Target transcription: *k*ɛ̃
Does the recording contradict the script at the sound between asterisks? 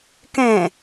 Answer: no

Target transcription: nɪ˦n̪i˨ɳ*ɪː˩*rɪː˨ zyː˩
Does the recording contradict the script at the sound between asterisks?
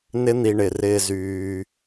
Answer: yes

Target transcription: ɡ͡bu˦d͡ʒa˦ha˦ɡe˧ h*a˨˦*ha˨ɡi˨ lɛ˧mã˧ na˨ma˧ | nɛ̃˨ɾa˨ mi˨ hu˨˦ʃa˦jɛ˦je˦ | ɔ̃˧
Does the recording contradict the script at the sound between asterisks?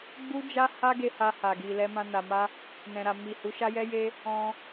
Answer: yes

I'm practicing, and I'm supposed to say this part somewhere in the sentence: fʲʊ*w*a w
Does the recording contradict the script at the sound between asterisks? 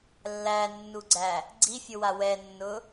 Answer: no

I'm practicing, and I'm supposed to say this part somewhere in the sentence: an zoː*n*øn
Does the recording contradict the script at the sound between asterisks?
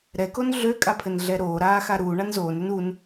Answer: no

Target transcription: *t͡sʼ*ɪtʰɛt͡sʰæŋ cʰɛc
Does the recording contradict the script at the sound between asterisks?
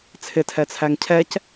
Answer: yes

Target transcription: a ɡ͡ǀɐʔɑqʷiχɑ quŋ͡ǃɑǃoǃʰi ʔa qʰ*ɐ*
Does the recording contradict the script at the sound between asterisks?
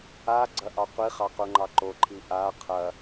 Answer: no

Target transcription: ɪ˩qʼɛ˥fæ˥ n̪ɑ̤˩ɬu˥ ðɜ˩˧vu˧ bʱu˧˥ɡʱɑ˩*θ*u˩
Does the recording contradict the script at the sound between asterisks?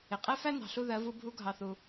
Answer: no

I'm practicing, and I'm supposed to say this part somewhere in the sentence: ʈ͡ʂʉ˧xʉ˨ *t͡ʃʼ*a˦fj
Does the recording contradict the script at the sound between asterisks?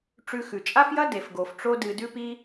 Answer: no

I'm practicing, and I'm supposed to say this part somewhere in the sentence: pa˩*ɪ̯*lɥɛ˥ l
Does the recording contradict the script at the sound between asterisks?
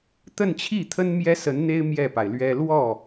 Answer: no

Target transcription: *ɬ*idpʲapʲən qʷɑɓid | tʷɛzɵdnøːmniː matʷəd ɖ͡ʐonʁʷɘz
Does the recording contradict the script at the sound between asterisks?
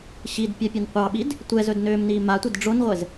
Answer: yes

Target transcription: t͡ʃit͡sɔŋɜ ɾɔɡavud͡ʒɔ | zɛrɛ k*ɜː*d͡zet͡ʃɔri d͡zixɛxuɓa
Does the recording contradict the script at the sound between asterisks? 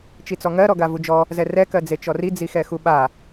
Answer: yes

